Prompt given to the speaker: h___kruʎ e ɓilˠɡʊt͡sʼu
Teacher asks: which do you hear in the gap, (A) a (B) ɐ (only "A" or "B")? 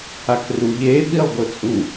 A